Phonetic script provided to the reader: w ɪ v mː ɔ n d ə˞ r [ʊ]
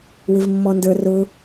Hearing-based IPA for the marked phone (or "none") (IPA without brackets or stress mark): ʊ